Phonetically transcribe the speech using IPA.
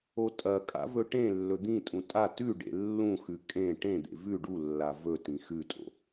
o tʼ ɐ kʼ a̰ v ɵ ʈ ẽ lː ɵ d̪ ĩ tʼ ũ tʼ a t ʉ ɖ ḛ lː ũ x ʉ kʼ ẽ ʈ ẽ d̪ ḛ v ʉ ɖ u lː a v ɵ t ĩ x ʉ tʼ o̰

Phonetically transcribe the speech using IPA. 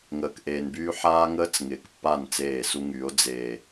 ŋ əː˨ k ʔ eː˨ n b yː˦ ħ aː˦ ŋ əː˦ t͡s ŋ ɪː˨ k pː a˦˨ n t͡s eː˦˨ s u˦ ŋ yː˨˦ o̯ d͡z eː˨

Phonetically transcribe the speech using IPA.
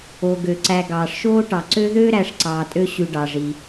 o˩ ɡ ø˩ ǀ æ˨ ɡ ɑː˩ ʂ ʃ oː˥ ʈ ɑ˩ ǀ ø˥ ð øː˥ ɾ æ˨ ʂ ǀ ɑː˨ tʼ ø˦ ɕ ʉ˨ ɖ ɑ˩ ʐ i˩

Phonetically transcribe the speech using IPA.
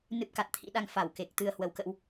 n ɨ˦˥ p̚ k a˨˩ t̚ t̪ʰ ḭ˧˥ ɗ a˧ ŋ f a˧˩ w k e˨˩ k̚ t̪ ɨ˧ ə̯ h w ə˨˦ w k ə̰˧˥ w

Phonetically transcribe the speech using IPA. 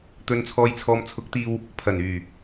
t̪ ɵ˨ n t͡sʰ ɔː˨ j t͡sʰ ɔː˨ m t͡sʰ ʊ˨˥ k̚ t̪ iː˧ w | pʰ ɐ˨˩ n yː˨˩

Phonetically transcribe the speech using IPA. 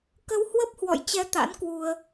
k ə˧ w h w ə˦˥ p̚ h w ɔ̰˧˨ j t͡ɕ ɛ˧ t̪ a̰˧˥ n k w u˧ ə̯

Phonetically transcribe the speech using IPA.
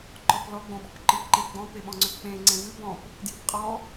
ǃ ɔ p l ɔ ɡ͡b õ ɓ ɔ̤ p ǃ ɨ p ǃ ẽ p ɡ͡b ɔ̃ p e ɓ ɔ̃ ŋ͡ǀ ʏ p k͡p ẽ ŋ͡ǀ ẽ v ɨ b ɔ̃ p | d j ɨ p qʼ ɔ

